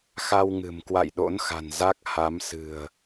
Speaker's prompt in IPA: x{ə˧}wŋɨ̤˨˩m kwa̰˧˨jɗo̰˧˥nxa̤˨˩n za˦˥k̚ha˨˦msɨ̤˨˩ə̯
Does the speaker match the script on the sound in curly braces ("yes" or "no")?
no